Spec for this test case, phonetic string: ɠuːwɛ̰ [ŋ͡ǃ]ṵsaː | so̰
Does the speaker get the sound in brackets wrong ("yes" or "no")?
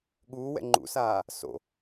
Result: no